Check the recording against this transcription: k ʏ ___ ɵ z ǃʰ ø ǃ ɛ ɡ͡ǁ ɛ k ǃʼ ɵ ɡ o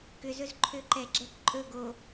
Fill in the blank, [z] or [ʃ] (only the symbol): z